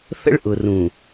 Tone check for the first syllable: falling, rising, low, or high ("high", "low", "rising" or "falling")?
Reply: high